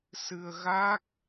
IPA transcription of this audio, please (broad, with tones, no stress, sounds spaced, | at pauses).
s ɨ˧ ə̯ ɣ a˦˥ k̚